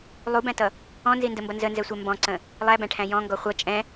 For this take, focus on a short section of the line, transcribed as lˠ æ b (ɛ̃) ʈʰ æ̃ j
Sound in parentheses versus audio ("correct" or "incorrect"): incorrect